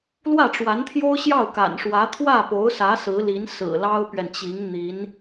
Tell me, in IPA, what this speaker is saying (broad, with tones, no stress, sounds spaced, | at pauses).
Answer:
l w ä˥˩ ʈ͡ʂ w a˧˥ n t̪ʰ j o˥ ʊ̯ ɕ j ɑ˥˩ ʊ̯ k a̰˨˩ n ʂ w ä˧˥ t̪ʰ w ä˥˩ p o˧˥ ʊ̯ s ä˧˥ s ɹ̩˧˥ l i˧˥ n s ɹ̩˨˩ l ɑ˥ ʊ̯ p ɥ ɛ˨ n t͡ɕ i˧˥ ŋ n̪ i˧˥ n